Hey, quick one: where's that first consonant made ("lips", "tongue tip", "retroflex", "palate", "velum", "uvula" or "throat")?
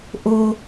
throat